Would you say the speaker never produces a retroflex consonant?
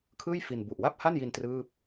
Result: yes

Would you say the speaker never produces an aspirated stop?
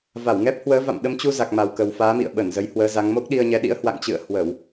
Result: yes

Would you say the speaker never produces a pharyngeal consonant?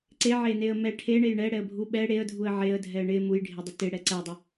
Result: no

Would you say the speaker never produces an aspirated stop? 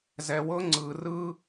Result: yes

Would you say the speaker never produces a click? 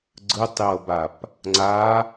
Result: no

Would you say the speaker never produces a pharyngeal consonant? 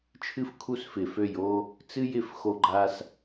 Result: yes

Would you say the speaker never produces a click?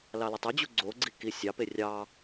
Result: no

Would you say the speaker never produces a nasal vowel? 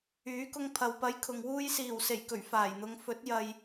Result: yes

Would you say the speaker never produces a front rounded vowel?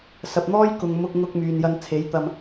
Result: no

